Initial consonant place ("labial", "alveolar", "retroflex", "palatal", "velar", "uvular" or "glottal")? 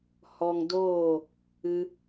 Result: glottal